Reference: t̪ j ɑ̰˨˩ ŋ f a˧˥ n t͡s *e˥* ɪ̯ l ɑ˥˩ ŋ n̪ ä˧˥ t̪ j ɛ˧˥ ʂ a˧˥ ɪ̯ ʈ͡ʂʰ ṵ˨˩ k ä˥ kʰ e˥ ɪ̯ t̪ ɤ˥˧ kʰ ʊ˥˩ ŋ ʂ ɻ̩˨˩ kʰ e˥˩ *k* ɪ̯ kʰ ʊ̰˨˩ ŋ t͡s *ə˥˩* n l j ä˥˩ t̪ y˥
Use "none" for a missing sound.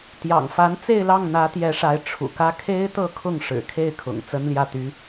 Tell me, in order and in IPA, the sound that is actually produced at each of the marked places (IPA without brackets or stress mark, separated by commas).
e˥˧, none, ə˥